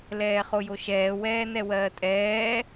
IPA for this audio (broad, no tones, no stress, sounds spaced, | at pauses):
l ɛː χ o j o ʃ ɛː w ɛː n ɛ w ɜː tʼ ɛː